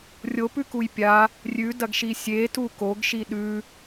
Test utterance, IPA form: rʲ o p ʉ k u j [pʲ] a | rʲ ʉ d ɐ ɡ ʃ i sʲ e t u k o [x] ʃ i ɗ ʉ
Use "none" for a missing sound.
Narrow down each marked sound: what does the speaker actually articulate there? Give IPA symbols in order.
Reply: pʲ, ɡ

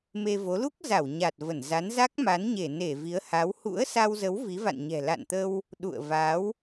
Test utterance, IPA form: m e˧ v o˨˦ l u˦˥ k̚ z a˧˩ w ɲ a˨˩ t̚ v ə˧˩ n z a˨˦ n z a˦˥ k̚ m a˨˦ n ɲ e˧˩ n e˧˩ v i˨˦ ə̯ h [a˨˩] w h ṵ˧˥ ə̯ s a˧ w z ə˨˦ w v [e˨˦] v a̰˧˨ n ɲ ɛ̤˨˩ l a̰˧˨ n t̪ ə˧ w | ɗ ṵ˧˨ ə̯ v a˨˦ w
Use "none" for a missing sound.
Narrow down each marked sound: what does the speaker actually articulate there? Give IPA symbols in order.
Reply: a˨˦, i˨˦

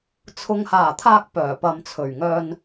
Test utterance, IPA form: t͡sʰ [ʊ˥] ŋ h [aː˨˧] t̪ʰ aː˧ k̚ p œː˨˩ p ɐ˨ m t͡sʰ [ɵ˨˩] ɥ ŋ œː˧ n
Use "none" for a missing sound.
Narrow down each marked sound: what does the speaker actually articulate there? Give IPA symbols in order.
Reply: ʊ˨, aː˨˩, ɵ˨˩

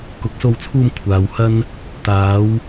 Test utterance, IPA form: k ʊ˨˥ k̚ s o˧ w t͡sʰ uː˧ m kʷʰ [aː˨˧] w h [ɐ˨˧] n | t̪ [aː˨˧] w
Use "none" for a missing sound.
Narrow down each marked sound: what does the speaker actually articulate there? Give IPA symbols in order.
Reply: aː˨˧, ɐ˥, aː˨˧

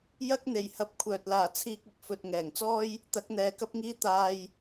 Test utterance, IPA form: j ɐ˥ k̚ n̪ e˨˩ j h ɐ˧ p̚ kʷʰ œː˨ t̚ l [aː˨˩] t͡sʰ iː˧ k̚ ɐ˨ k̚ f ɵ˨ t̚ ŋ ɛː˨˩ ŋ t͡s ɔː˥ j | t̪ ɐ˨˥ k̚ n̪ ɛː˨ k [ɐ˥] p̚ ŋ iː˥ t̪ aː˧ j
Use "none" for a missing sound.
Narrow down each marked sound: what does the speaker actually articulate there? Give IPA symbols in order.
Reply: aː˨˩, ɐ˥

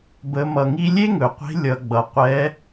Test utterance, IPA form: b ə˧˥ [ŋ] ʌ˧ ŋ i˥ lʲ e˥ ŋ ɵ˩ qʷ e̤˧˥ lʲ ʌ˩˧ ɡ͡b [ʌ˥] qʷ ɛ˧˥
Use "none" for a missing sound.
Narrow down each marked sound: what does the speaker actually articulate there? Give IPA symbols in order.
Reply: m, ʌ˩

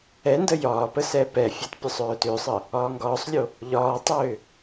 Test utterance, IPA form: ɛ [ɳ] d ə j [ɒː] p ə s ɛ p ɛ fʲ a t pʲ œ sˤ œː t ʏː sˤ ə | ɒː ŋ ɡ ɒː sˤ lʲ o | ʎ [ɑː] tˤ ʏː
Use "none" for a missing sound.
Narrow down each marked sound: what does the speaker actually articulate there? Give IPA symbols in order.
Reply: n, ɒː, ɒː

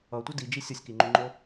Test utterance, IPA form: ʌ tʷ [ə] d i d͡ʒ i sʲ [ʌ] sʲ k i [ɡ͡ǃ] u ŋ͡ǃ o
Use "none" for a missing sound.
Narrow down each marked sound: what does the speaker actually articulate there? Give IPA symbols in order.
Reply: ʌ, ʌ, ŋ͡ǃ

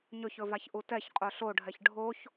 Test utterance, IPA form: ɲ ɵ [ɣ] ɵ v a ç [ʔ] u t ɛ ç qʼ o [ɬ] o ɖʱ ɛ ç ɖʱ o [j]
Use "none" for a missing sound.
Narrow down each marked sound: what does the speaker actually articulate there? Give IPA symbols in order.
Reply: ç, ʔ, ɬ, ç

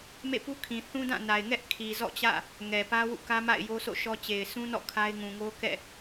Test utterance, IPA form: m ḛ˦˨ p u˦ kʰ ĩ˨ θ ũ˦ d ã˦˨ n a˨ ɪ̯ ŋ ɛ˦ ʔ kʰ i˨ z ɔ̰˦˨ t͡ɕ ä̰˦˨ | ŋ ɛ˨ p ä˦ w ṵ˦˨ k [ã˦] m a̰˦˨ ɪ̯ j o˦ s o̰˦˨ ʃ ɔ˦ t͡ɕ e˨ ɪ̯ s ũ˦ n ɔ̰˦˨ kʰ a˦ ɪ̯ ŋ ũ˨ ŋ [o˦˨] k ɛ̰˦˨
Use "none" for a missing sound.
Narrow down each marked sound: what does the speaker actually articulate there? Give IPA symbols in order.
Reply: ä˦, o˦

